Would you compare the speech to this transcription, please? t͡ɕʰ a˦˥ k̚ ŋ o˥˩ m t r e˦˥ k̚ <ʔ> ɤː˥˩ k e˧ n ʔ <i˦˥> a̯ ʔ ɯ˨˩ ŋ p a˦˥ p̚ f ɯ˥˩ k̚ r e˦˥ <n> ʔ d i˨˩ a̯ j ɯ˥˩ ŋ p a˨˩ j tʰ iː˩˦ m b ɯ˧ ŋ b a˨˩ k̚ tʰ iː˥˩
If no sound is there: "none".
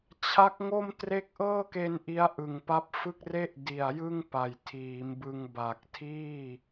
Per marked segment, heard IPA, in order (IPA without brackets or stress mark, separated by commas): ʔ, i˦˥, none